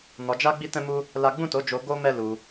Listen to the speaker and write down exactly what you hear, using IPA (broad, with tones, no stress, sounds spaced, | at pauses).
n ɔ˧ d͡ʒ a˦ ɡ͡b i˦ t ɛ̃˦ m u˦ | l a˦ ɡ͡b ũ˦˨ t o˨˦ d͡ʒ o˧ ɡ o˦ m ɛ˦ l u˧